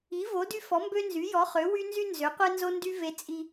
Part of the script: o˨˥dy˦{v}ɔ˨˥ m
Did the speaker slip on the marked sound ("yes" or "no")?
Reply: yes